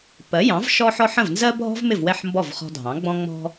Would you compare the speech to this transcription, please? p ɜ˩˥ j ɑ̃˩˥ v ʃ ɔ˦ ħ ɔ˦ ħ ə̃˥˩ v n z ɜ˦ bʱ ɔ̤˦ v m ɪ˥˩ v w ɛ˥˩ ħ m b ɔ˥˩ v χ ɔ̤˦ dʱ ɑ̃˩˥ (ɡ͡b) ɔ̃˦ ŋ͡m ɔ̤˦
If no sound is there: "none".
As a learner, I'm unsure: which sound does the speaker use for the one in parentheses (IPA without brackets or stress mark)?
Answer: ɡ͡b